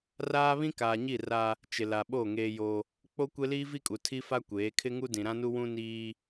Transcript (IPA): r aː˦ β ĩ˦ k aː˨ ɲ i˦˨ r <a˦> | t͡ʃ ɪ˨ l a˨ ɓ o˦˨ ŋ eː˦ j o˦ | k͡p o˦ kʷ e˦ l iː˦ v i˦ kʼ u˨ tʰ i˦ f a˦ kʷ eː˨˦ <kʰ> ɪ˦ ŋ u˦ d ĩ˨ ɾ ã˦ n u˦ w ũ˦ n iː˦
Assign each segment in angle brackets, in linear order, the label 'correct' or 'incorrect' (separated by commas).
correct, correct